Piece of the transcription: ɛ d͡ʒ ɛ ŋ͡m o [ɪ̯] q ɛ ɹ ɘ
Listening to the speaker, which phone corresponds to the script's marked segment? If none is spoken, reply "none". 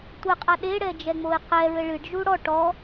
ɪ̯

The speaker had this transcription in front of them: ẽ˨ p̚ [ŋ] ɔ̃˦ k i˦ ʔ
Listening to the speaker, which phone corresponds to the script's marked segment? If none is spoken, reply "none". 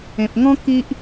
ŋ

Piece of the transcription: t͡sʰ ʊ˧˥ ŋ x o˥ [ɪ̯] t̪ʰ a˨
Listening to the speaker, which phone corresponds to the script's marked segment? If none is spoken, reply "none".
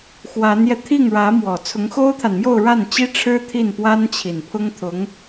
ʊ̯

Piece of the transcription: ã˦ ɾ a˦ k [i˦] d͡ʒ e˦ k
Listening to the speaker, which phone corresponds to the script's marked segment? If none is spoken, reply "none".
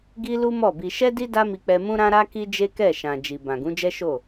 i˦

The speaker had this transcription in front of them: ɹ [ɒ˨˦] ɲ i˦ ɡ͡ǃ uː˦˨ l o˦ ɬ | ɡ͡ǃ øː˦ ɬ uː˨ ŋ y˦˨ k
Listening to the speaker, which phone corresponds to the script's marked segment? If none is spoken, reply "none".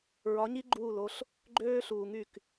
ɒ˨˦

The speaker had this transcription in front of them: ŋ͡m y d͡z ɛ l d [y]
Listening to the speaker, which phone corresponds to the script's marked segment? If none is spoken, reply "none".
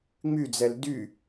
y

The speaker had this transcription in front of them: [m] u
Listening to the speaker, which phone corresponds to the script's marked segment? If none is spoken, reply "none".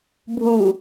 bʱ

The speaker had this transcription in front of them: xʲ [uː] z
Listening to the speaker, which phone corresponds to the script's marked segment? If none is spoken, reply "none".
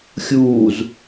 uː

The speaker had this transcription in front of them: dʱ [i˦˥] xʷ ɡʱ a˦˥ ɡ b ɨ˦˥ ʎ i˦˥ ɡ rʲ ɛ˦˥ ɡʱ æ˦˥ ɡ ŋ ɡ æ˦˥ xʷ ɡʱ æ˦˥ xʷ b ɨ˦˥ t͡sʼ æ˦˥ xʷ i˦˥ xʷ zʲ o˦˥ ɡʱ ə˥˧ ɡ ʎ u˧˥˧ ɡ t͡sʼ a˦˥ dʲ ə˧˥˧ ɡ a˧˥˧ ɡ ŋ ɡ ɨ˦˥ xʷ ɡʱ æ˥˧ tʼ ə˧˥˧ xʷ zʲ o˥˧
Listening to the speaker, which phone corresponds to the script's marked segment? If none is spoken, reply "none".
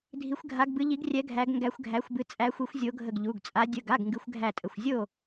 i˦˥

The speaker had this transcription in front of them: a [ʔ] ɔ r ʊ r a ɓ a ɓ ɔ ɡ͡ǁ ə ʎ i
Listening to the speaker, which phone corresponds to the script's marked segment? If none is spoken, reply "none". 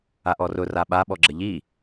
ʔ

